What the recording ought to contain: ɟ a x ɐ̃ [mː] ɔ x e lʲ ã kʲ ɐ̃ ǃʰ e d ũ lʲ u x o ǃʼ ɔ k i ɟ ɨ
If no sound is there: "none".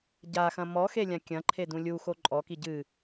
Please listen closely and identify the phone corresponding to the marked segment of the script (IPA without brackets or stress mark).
m